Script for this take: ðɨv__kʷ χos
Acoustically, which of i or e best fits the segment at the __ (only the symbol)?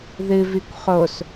i